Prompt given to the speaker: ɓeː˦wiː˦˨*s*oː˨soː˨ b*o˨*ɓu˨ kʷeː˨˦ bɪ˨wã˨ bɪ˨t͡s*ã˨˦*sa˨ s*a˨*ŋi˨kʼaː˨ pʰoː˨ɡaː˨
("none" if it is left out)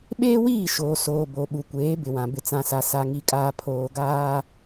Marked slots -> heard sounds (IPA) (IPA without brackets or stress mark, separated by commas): ʃ, o˨, ã˨, a˨